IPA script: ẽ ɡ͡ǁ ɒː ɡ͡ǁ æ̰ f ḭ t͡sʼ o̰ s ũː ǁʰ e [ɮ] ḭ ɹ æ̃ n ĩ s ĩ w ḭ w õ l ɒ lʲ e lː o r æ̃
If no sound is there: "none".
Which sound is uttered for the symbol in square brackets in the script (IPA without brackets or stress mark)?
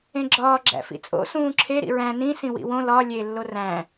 ɾ